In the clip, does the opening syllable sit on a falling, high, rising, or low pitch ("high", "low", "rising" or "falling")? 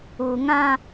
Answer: low